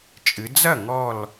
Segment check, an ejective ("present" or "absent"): present